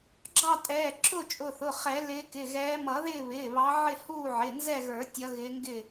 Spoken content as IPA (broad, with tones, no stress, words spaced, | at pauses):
ɡ͡ǁɑ˦˨tʼɛː˩˧˩ ǁʊ˦˨t͡ʃʼʊ˩˧˩θʊ˩˧˩ χɛ˨˩˦lɪː˨˦kɪ˩˧˩ ɣɛː˨˦mʌ˨˩˦ðɪː˦˨ βɪː˩˧˩βɑ˨˦ʕɪ˦˨ huː˦˨ʕɪ˩˧˩nzɛ˦˨ɣə˞˨˩˦ tʲʌ˨˦ɣɪː˨˦ ŋɡɪ˦˨